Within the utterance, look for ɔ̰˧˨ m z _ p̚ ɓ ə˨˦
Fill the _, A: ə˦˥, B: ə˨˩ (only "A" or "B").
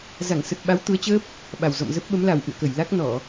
A